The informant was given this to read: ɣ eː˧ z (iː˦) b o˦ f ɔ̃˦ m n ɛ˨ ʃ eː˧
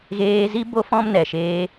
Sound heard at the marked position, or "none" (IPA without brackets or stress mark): i˦